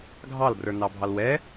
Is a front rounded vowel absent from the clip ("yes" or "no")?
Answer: yes